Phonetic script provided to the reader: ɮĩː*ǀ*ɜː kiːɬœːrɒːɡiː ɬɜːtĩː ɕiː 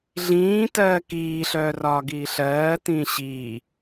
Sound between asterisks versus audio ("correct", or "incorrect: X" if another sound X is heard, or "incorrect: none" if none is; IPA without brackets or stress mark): incorrect: t